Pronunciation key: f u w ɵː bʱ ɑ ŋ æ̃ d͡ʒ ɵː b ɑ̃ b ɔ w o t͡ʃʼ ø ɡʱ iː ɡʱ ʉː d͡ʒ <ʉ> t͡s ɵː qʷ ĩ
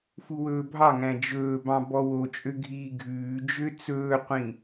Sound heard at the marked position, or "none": ø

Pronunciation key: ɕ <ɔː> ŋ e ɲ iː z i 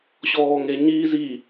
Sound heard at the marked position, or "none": ɔː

